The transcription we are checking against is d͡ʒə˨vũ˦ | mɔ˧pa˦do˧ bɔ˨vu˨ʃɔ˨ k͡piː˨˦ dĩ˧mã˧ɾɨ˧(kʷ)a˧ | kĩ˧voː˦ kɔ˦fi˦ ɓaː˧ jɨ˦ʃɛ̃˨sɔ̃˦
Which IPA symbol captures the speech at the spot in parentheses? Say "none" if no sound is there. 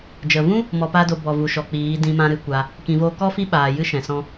kʷ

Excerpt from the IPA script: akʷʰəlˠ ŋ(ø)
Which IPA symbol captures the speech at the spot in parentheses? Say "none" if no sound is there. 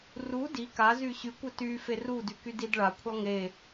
e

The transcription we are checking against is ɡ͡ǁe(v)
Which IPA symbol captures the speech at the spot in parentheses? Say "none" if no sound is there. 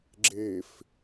f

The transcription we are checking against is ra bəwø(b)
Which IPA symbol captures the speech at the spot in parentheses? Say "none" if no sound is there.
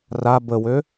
none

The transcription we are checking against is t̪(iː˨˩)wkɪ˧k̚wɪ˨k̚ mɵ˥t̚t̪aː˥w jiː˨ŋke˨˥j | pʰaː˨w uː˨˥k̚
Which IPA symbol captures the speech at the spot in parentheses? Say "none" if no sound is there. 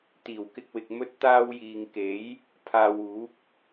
iː˨˩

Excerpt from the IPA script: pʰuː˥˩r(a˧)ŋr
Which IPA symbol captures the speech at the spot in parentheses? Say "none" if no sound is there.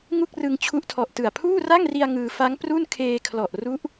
a˥˩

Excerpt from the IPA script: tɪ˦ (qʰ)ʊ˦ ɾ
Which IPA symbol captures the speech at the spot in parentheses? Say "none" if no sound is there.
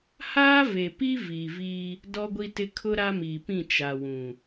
kʰ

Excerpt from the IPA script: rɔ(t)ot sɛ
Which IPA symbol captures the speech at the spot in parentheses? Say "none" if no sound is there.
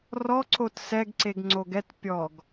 ǀ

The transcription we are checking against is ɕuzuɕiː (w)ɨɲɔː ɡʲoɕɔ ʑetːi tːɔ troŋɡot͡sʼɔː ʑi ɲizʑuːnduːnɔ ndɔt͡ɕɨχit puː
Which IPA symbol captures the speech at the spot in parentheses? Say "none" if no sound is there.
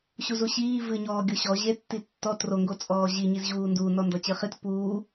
v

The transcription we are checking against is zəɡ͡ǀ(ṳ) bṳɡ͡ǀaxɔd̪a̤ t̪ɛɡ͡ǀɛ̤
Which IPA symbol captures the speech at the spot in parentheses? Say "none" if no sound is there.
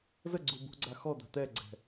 u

